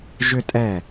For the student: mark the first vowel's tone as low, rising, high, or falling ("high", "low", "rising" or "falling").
high